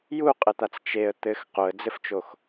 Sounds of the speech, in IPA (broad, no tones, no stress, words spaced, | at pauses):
juqʼɘt̪at͡s t͡ʃeə̯ t̪ɘx qoə̯d͡zɘft͡ʃox